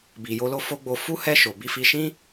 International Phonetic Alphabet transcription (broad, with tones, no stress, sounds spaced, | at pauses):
b i˨ j o˧ l o˧ f o˦ ɡ͡b o˧ f u˦ h ɛ˦˨ ʃ o˨ b i˧ f i˧ ʃ ĩ˦